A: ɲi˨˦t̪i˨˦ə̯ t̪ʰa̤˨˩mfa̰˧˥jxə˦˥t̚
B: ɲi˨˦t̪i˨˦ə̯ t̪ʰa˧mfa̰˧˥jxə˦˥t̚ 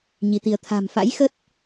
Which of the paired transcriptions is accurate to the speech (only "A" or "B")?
A